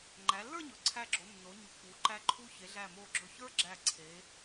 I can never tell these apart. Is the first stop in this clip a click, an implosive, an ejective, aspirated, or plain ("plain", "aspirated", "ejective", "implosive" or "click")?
click